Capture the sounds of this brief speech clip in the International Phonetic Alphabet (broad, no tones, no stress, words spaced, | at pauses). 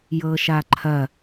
jɤʃaǃʰɐ